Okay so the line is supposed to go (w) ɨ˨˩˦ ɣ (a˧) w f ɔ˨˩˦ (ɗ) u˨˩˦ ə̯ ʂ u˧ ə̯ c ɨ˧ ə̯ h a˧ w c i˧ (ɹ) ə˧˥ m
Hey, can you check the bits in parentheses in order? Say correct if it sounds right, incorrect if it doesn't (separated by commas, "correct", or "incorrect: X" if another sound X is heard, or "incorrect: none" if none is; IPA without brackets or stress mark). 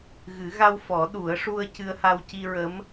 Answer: incorrect: ɣ, correct, correct, correct